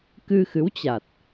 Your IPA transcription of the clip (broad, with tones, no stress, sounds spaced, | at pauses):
k ɨ˧ x ɨ˨˦ w t͡ɕ a˨˩ t̚